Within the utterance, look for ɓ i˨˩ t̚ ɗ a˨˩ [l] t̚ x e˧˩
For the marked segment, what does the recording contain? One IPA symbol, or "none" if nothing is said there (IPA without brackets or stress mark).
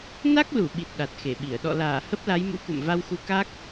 none